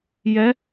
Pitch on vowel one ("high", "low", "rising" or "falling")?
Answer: rising